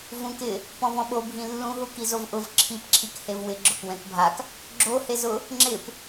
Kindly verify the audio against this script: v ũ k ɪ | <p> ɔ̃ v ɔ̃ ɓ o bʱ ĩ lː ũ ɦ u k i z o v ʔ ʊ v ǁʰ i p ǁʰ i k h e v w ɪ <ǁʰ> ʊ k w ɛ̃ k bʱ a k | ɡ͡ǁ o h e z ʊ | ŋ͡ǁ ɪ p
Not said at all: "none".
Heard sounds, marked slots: p, ɡ͡ǁ

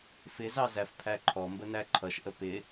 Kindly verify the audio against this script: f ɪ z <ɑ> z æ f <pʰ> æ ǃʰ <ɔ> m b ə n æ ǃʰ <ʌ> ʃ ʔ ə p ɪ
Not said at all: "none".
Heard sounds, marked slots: ɑ, pʰ, ɔ, ʌ

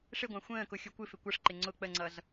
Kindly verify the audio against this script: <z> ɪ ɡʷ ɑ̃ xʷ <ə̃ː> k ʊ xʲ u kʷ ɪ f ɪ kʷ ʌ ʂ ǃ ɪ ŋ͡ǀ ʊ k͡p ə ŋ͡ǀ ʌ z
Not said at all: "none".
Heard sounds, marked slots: ʂ, ə̃ː

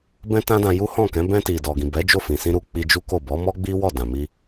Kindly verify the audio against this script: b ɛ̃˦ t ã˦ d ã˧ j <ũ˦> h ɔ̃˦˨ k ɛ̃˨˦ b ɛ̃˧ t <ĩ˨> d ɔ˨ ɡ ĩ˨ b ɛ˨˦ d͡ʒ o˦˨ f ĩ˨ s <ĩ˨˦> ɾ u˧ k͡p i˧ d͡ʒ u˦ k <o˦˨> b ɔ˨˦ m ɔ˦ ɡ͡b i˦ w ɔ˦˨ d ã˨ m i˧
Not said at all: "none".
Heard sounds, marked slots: u˦, i˨, ĩ˧, o˦˨

